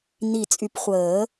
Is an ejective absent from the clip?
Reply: no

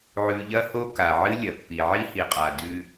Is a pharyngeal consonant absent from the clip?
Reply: no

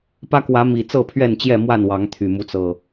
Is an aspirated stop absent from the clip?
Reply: no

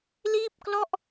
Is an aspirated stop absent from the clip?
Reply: yes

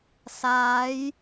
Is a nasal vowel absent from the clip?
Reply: yes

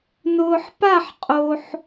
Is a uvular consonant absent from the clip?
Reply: no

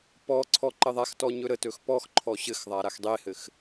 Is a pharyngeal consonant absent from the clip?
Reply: yes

